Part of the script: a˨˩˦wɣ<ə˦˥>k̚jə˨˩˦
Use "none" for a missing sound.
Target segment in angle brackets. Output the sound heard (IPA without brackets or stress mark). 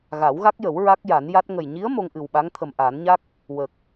a˦˥